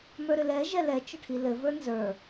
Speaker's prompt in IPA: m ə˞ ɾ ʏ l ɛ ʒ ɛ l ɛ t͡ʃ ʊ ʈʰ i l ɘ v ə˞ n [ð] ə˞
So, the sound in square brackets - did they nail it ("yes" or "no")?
no